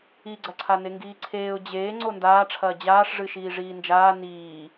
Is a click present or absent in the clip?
present